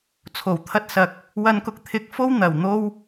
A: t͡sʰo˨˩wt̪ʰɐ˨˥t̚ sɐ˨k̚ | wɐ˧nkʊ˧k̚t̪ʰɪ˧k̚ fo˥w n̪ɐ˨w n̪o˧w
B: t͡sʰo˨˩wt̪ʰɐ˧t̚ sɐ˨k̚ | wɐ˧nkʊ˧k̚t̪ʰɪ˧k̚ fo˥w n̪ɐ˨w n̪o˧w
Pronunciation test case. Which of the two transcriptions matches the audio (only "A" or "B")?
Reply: B